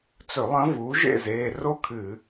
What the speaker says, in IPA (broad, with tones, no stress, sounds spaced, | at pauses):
t͡s ɵ˧˩˧ lˠ ɐ̃˧˥ v uː˩˥ ʒ ḛ˥˨ z eː˩˧˩ r o˥ kʰ ɨ˧˩˧